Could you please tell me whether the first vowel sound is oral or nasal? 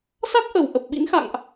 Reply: oral